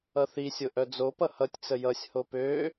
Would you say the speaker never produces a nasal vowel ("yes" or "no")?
yes